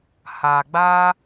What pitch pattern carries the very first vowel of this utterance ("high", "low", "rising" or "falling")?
low